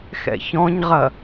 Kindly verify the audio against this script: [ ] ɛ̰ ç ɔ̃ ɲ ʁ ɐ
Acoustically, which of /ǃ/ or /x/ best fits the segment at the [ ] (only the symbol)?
x